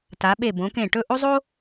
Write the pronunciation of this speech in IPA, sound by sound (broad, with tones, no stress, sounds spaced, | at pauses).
t a˩˧ ɓ e˧˩ b õ˩˧ k ẽ˧˩ ʈ ɵ˥˧ ʔ o˥ zˤ o˥